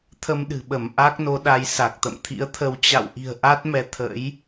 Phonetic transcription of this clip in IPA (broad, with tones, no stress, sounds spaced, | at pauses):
t̪ʰ ə˧ m ɗ ɨ̤˨˩ ɓ ə˧˩ m ʔ a˦˥ k̚ n o˨˦ ɗ a˨˦ j s a˨˩ k̚ t̪ ə̰˧˨ m t̪ʰ ḭ˧˥ ə̯ t̪ʰ ə˧ w t͡ɕ a̰˧˨ w ʔ i̤˨˩ ə̯ ʔ a˦˥ t̚ m ɛ˧ t̪ʰ ə̰˧˥ j